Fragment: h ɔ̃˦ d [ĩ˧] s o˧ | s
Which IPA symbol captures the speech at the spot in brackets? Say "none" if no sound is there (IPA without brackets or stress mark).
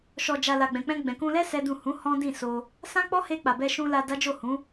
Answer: ĩ˦˨